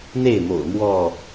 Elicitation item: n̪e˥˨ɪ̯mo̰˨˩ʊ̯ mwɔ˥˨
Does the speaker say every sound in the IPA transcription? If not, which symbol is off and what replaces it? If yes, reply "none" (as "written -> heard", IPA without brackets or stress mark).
none